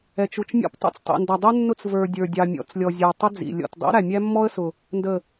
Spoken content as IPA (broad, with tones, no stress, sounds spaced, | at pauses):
ɛ˨ t͡ʃ u˨ t͡ʃ mʲ ɔ̰˦ p tˤ ṵ˦ t͡s tˤ ḭ˨ n d ʌ˨ dˤ u˦ nː ʊ˦ t͡s v ə˞˨ dʲ ə˞˨ dʲ ɑ˨ mʲ ɔ̰˨ t͡s lʲ ɔ˨ zʲ ə˞˨ tˤ ɪ˦ d͡z ḭ˨ lʲ ɔ̰˨ t dˤ ḭ˦ ɾ æ˨ mʲ æ˦ mː ɔ˦ ə̯ s ʊ˨ | n d ə˨